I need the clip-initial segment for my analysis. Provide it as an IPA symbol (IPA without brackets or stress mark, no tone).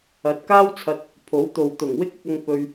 ɐ